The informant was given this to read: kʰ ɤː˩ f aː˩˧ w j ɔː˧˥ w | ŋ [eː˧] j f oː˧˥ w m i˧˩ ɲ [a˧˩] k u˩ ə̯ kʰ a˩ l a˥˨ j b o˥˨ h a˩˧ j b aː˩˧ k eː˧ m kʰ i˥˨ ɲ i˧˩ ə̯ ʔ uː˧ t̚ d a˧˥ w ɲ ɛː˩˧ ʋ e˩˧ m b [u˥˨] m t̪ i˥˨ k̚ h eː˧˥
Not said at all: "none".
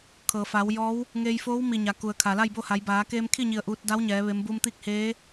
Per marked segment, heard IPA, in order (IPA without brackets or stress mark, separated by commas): eː˧, a˩, u˧